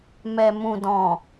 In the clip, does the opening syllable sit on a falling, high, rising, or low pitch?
low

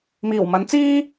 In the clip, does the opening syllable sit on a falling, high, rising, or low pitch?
low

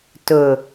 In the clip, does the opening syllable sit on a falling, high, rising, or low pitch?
low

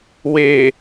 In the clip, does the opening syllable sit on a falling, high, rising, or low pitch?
low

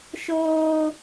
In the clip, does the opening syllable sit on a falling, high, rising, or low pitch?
high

